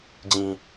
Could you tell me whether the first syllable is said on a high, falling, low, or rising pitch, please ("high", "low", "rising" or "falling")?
low